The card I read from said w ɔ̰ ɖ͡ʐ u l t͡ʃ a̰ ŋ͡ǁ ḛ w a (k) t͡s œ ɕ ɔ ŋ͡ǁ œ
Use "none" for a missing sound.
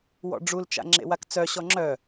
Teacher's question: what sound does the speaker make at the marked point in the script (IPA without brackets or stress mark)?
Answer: k